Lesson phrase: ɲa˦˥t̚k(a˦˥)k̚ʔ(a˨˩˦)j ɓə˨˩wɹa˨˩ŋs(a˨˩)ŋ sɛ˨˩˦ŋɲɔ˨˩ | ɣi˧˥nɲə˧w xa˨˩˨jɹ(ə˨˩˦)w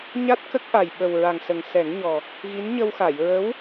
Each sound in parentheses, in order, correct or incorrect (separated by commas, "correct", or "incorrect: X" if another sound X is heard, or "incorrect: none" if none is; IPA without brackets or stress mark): incorrect: ə˦˥, incorrect: a˨˩, incorrect: ə˨˩, incorrect: ə˧˥